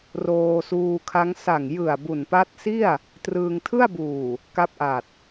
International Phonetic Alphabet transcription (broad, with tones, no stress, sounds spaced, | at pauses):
r oː˧ s uː˧ kʰ a˦˥ ŋ s a˨˩ ŋ j ɯ˨˩ a̯ b u˨˩ n p a˦˥ t̚ s i˥˩ a̯ | t r ɯː˧ ŋ tʰ ɯ˥˩ a̯ b uː˨˩ | k a˦˥ p̚ ʔ a˨˩ t̚